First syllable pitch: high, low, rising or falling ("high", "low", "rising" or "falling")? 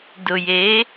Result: low